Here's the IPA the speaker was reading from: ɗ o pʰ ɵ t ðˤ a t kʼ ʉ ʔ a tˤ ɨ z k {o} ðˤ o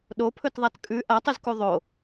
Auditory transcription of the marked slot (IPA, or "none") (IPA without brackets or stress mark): u